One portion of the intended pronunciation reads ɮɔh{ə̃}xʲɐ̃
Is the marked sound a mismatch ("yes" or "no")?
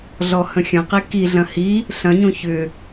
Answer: no